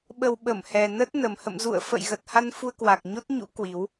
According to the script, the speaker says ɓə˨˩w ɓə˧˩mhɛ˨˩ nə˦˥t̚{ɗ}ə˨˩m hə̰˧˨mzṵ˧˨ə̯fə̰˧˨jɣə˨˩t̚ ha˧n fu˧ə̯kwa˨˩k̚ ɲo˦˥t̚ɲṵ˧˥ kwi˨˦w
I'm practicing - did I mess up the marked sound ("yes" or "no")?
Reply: yes